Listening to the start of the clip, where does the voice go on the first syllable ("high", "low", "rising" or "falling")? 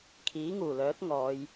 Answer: rising